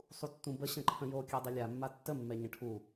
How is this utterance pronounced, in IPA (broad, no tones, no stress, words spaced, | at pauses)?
sˤutːũbə ɕə̃ǃʰə̃jo kʲɛdˤilʲa mːatːə mːɛɲə̃ʈʰu